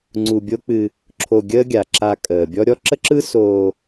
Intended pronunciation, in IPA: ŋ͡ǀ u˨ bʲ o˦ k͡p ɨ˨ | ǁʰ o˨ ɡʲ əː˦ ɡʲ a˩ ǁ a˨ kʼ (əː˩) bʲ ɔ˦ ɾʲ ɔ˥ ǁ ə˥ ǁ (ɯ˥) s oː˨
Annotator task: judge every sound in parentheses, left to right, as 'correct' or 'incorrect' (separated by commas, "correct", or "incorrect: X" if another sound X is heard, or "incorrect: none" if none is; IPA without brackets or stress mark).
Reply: correct, correct